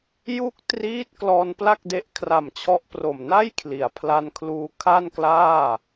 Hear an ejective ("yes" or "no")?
no